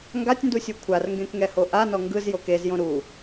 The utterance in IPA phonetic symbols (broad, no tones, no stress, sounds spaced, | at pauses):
ŋ ɡ a tʲ n d u sʲ u kʷʰ a r ŋ ɡ ẽ k ŋ ɛ h o ʔ a n ɔ ŋ ɡ ɯ z j o k e z j õ ɾ u